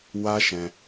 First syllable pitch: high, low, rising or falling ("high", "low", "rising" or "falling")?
high